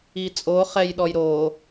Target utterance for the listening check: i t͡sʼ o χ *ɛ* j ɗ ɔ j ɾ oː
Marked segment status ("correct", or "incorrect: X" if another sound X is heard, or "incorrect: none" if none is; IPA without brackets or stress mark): correct